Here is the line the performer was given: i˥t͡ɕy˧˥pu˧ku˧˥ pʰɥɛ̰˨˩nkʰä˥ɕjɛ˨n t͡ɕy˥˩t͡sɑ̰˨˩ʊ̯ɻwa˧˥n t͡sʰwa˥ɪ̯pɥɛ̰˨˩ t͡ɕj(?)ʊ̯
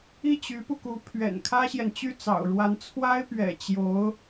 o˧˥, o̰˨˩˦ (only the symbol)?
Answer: o˧˥